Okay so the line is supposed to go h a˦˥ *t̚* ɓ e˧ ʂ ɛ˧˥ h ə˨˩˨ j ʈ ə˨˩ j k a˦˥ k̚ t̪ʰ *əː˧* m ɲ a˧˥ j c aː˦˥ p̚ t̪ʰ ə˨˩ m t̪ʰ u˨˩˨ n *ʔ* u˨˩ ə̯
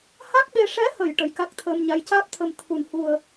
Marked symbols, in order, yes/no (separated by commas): no, yes, no